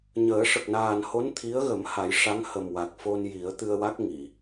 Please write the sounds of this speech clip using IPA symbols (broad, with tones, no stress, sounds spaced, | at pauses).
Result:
ɲ əː˨˩˦ ʂ ə˨˩ k̚ n aː˨˩ n h o˧˥ n t̪ʰ i˧˥ ə̯ ɣ ə˨˩˦ m h a˨˩˦ j ʂ a˧˥ ŋ h ə˨˩ m w a˨˩ k̚ f o˧ n j i˨˩˦ ə̯ t̪ ɨ˧ ə̯ w a˦˥ k̚ ŋ i˨˩˨